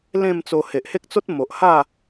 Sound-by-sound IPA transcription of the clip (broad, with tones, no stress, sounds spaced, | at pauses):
l ẽ˥˧ m t͡s o˧ h e˨ ʔ h e˦ k̚ t͡s o˦ t̚ m o˨ ʔ h a˥˧